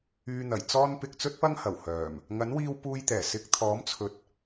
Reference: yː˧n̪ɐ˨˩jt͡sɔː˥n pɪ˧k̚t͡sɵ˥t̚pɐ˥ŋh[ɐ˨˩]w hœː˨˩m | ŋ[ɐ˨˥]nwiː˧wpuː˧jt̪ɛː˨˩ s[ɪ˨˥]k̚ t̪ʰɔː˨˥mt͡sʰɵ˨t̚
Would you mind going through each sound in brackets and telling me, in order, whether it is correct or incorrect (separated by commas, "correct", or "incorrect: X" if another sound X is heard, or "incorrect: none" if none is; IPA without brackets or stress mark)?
correct, correct, incorrect: ɪ˧